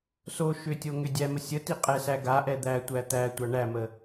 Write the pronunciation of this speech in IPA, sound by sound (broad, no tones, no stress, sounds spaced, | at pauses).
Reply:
s o ʃ ʏ tʲ o ŋ ʏ dʲ æ m ə sʲ ə t i qʼ ɛ s æ ɡ a ʔ ɛ d̪ æ tʷ æ t̪ æ tʷ a ɳ æ m ə